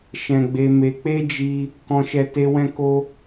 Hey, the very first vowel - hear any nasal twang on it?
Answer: yes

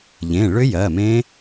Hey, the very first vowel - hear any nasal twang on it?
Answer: yes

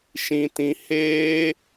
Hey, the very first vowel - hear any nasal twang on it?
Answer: yes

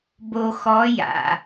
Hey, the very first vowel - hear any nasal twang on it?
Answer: no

